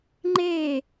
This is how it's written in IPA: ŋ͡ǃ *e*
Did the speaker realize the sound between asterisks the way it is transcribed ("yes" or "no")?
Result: yes